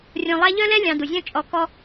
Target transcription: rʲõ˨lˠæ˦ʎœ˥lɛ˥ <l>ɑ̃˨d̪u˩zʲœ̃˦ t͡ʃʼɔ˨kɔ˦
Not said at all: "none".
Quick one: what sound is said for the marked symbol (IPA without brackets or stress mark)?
lʲ